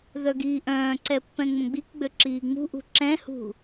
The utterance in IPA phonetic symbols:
ð œ ɡ iː ʔ œ̃ː ǀ ɛ pː ɛ̃ ŋ͡m ə̃ ɡ͡b i k ɡ͡b ø ǁ iː ŋ͡m ṳ ʔ ṳ ǁ ɛ̃ h ṳ

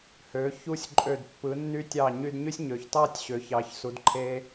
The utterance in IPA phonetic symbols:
h ø˩˧ ç u˧ sʲ ǃʼ ø˧˩ d pː ɯ˩˧ nː y˧ tʲ ɑ˧˩ ɲ y˧ d ɲ y˥ sʲ ɲ ø˩˧ ç t ɑ˥˧ tʲ ɕ ø˩˧ ç ɑ˩˧ ç s u˩˧ d ǃʰ e˧

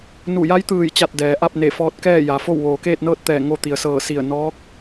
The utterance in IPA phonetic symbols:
n u˧˩ j a˧˥ j t̪ ɯː˧˩ j t͡ɕ a˧˩ t̚ d ɛː˩ ʔ a˥˨ p̚ n e˧˩ f ɔː˧ t̚ k ɛː˥˨ j a˩ f o˥˨ w ʋ oː˩ k eː˥˨ t̚ n ɤː˥˨ t̚ t̪ ɛː˧˩ ŋ o˧ t̪ i˩ ə̯ s ɤː˧˩ s i˧˩ ə̯ n ɔː˧˥ k̚

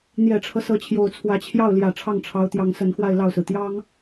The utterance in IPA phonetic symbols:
n̪ j ɛ˨˩ ʈ͡ʂʰ ɤ˦ s ɤ˧˥ t͡ɕʰ j o˨˩ ʊ̯ t͡sʰ w ä˧˥ t͡ɕʰ j ɑ˥˩ ʊ̯ l j ä˨˩ ʈ͡ʂʰ ɑ˥˩ ŋ ʈ͡ʂʰ ɑ˧˥ ʊ̯ t̪ j ɑ˧˥ ŋ s ə˧˥ n x w a˥˧ ɪ̯ l ɑ˥˩ ʊ̯ s ɹ̩˩ t̪ j ɑ˥ ŋ

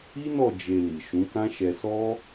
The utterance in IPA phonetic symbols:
i˦ n ɔ˦˨ d͡ʒ e˧ l i˨ ʃ ũ˨˦ k ã˦ ʃ ɛ˧ s ɔ˦

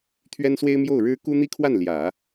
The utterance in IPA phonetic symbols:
t̪ʰ ɥ ɛ˥ n s w e˥ ɪ̯ m j o˥˩ ʊ̯ ɻ ɻ̩˥ k u˥ n̪ i˥ kʰ w a˥˩ n l j ä˨˩˦

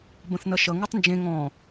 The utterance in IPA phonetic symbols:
b ə̃ θ n ʌ ʃ ʌ ŋ u tˤ n d͡ʒ ẽ ŋ ɔ̃

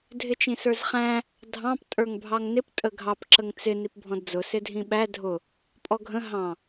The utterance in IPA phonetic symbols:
dʱ ɪ t͡ʃ ĩ s ə˞ z χ æ̃ | dʱ ɑ̃ p tʼ ə˞ ŋ bʱ ɑ ŋ n ɪ p tʼ ə ɡʱ ɑ p ǁ ə ŋ t͡s ɪ n i p bʱ ɔ̃ d d͡z ʊ s ɪ dʱ ĩ ɓ æ dʱ ʊ | pʼ ɔ ɡʱ ə̃ ɦ ɑ̃

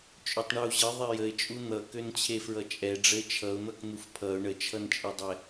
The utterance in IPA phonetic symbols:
t͡ʃʼ ø tˤ ɳ u ʑ ə ðˤ ɛ j ə ɪ̯ t͡ʃʼ u n̪ ʌ k ø n t͡ɕʰ e f ɹ ʌ t͡ʃʼ ɛ ɖ͡ʐ ə ɪ̯ t͡ʃʰ ʌ ʊ̯ n̪ ʌ k n̪ u f pʰ ʌ ʊ̯ ɳ ə t͡ʃʰ ʌ n t͡ʃʼ e dˤ ɛ

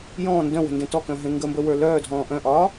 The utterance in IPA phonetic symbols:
j ɔ̃ː n d œ̃ w ə̤ n d ẽ t ɔ k œ̃ ɦ ẽ ŋ ɡ ə m b ə w ə˞ l œː dʱ ɔ̃ː ʔ œ̃ ʔ ɒː

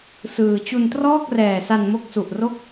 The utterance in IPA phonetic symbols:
s ɯː˧ t͡ɕ u˧ n t r ɔː˥˩ k̚ r ɛː˨˩ s a˧ n m o˦˥ k̚ s u˨˩ ʔ r o˥˩ k̚

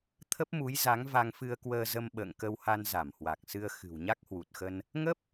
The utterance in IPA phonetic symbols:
t̪ʰ ə˦˥ p̚ m u˨˦ j z a˨˦ ŋ v a˧ ŋ f ɨ˧ ə̯ k w əː˧ z ə˧ m ɓ ə̰ː˧˨ ŋ k ə˧ w h a˧ n z a˧˩ m h w a˨˩ k̚ s ɨ˧ ə̯ x ɨ̤˨˩ w ɲ a˦˥ k̚ h w u˨˩ t̚ x ə˧ n | ŋ ə˦˥ p̚

